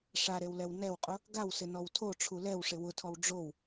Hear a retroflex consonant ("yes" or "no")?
yes